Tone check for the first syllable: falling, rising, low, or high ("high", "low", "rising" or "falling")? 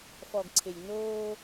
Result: low